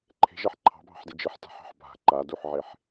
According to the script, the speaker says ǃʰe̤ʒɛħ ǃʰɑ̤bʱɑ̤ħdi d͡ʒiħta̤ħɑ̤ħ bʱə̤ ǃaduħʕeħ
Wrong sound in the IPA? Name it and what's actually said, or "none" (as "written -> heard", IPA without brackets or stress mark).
ə̤ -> a̤